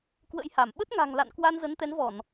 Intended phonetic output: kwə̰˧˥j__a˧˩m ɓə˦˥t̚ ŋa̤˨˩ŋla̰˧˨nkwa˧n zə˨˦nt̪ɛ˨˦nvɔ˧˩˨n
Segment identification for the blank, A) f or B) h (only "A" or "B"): B